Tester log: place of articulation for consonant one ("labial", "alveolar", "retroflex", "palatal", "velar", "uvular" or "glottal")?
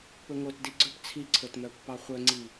labial